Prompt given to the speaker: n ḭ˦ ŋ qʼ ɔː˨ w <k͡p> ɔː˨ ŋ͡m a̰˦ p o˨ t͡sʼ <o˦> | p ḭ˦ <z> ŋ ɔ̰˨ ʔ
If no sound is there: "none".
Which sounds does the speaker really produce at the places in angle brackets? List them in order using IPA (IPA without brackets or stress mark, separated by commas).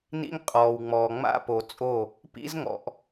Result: ŋ͡m, o˦˨, z